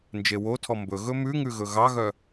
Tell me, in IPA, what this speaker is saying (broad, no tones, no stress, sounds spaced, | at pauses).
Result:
n d͡ʒ e w o tʰ ɔ m b ɵ ɣ ɵ m ʉ ŋ ʉ ɣ ɵ ɣ ɑ ɣ œ